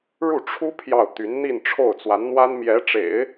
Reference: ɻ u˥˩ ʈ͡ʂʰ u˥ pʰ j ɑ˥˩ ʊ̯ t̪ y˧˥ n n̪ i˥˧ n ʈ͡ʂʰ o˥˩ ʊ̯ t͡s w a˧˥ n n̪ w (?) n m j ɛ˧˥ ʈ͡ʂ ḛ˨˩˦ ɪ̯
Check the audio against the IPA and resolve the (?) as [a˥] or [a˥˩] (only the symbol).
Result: a˥